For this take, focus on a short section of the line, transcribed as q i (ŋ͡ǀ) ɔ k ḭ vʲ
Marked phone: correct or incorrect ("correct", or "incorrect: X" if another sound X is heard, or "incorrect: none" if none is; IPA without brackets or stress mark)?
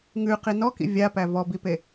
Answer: incorrect: n